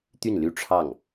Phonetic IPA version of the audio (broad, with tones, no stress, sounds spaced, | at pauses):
t̪ y˥˩ n l y˥ ʈ͡ʂʰ ɑ˥˩ ŋ